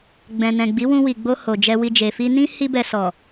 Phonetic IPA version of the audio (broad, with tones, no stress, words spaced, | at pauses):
ɡ͡bɛ̃˨nɛ̃˨ ɡ͡bi˨˦wũ˧wi˨ɡ͡bo˧ ho˨d͡ʒɛ˧wi˧ d͡ʒe˨fi˧nĩ˦ hi˦bɛ˧ sɔ˨